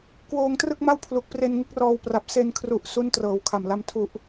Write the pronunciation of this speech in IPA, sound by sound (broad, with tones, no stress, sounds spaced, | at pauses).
k w oː˧ ŋ t r ɯ˥˩ k̚ m a˥˩ w pʰ l u˨˩ k̚ p r e˧ n ŋ ɯ˦˥ k̚ r ɔː˧ w p r a˨˩ p̚ s e˧ n kʰ r u˨˩ ʔ s u˦˥ n t r ɤː˨˩ w kʰ a˨˩ m l a˦˥ m tʰ u˨˩ ʔ